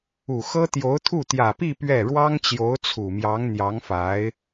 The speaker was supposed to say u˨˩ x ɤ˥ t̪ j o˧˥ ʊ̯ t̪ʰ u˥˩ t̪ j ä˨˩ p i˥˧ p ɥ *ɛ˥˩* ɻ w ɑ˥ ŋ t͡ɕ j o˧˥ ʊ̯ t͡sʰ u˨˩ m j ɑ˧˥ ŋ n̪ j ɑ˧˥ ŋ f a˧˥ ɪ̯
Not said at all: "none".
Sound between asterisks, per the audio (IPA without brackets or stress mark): ɛ˥˩